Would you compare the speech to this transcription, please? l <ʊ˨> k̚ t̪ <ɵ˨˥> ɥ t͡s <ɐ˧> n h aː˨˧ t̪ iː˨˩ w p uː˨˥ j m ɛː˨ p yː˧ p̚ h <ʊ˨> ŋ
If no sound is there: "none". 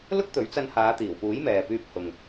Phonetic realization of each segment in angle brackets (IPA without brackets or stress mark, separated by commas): ʊ˥, ɵ˨˥, ɐ˧, ʊ˨